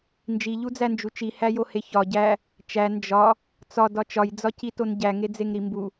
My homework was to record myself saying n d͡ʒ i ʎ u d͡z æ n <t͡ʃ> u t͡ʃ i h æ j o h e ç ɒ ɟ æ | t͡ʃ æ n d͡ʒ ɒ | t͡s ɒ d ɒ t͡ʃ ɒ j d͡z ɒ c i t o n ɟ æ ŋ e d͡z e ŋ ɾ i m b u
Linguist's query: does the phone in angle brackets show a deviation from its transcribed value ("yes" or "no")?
yes